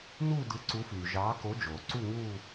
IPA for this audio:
n uː˥˧ d ɯ˨˦ ǀ u˨˦ f yː˩ ʒ ɑː˨˦ k o˨˦ d͡ʒ oː˩ ǀ u˥˧ ŋ uː˥˧

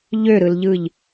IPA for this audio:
ʎ ø ɾ ɯ l ʎ ɯ ʎ

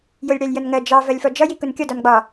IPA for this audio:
j ʊ lʲ ɽ æ lʲ j ʌ n ŋ ɜ d͡ʒ ɑ v ɜ lʲ f ɔ d͡ʒ ʌ j i k ʊ n kʲ ɔ d ɒ n ɡ͡b ɒ

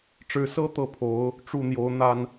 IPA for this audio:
ʈ͡ʂ ɻ̩˧˥ s ɤ˥ t̪ ɤ˥ pʰ o˧˥ ʊ̯ | ʈ͡ʂ u˥˩ n̪ j o˧˥ ʊ̯ n̪ a˥ n

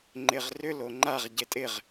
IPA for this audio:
ŋ͡ǃ ɪ ʁ r ʏ l o ŋ͡ǃ a ʁ ɟ e tʼ ɪ ʁ

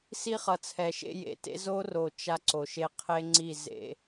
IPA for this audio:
s i˦ χ ʌ˨ t͡sʰ ɛ˨ ʃ ḛ˦ j ḛ˨ t ḛ˦ z o˦ r o˨ t͡ʃ a˦ ǀ o˨ ʃ e˦ qʰ e˦ ŋ͡ǀ i˦˨ z ḛ˦

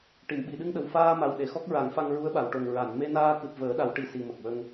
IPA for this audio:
ʈ i˨˩˨ m ɓ i˨˩˨ ɗ ɨ˧ ŋ ɗ ə˨˩ w f aː˧ m a˨˩ w ɗ e˨˩˨ x ɔ˦˥ k̚ ɹ a˨˩˦ ŋ f a˧ ŋ ɹ u˧˥ ə̯ ɓ a˨˩˨ w ʈ o˨˩ ŋ ɹ a˨˩˨ n m e˧ n aː˧ k ɨ˨˩ p̚ v əː˨˩˦ ɗ a˨˩˦ w ʈ i˨˩ s i˨˩ m ə˨˩ k̚ w ə˧ ŋ

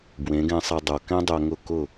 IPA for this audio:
b w ẽ˩˥ ɡ ɛ̃˧ sˤ e˧ dˤ o˩ k ɛ̃˥ dˤ œ˧ ŋ ʊ˥˩ k ʊ˥˩

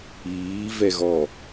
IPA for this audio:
iː v ɛ ɣ ɔ

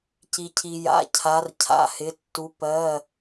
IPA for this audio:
c i˩ cʰ i˩ j a̰˩˧ cʰ a˩˧ r cʰ a̰˩˧˩ h ɪ˩˧ tː u˩˧ p ɜ˩˧˩

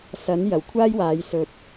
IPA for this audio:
s ɐ˨˥ n j ɐ˨˩ w kʷʰ aː˥ j w aː˨˧ j s ɵ˨ t̚

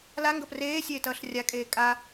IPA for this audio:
l a ŋ ɡ ʌ p r eː sʲ eː t ʌː ɬ rʲ a kʼ eː kʼ a

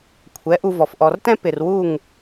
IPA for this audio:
kʷʰ ɛ˨˦ ʔ u˧ v ɔ˨ f ʔ ɔ˨ r t ɛ̃˦ p ɪ˨ r w u˦˨ ŋ

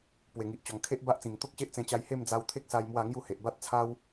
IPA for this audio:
p w e˨˩ ŋ i˨ ʔ t͡ɕ ɔ˨˩ ŋ kʰ e˦ ʔ b a˦ ʔ t͡s ĩ˨˩ ŋ t̪ o˦ k̚ ɕ e˦ ʔ t͡s ẽ˧ t͡ɕ a˧ j h e˥˧ m d͡z a˧ w t̪ʰ e˦ k̚ s a˧ j m w a˥˧ ŋ j u˥˧ h e˨ ʔ b a˦ t̚ t͡sʰ a˦ w

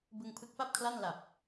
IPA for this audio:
b ɯ˧ ŋ pʰ ɯ˦˥ k̚ p a˥˩ p̚ kʰ l a˥˩ n l a˨˩ p̚

